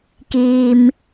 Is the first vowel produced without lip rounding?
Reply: yes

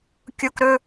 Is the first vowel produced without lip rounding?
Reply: no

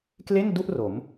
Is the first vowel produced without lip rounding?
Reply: yes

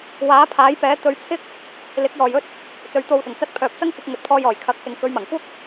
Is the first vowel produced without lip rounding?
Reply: yes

